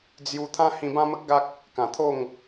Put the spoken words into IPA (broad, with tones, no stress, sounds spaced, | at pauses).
d͡z j u˧ t̪ʰ ã˦ h ĩ˧ b ã˦ m ə˦ k̚ ɡ a˦ k̚ | k ã˨˩ t̪ʰ o˥˧ ŋ